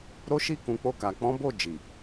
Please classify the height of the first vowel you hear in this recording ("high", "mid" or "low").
mid